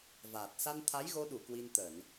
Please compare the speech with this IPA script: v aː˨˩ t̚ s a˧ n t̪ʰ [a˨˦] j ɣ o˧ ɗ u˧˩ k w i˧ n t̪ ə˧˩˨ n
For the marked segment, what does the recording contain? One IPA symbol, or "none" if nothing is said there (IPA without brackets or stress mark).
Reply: a˨˦